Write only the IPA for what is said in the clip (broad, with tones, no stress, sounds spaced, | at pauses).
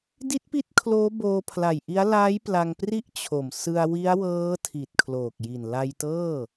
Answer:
d i˦˥ t̚ p i˦˥ t̚ kʰ l oː˦˥ b oː˧ pʰ l a˨˩ j ʔ i˦˥ a̯ l aː˦˥ j p l a˧ ŋ p r i˥˩ ʔ t͡ɕʰ o˨˩ m s ɯ˧ a̯ w i˦˥ a̯ w ɤː˦˥ tʰ i˨˩ t̚ kʰ l oː˨˩ k̚ j i˨˩ n l a˧ j t ɤː˥˩